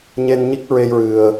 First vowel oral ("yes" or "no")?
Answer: yes